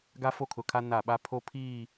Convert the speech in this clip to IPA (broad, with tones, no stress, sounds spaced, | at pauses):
ɡ a˦ f o˦ kʰ ʊ˨ kʰ a˦ n a˦˨ ɓ a˦ pʰ o˦ pʰ iː˦˨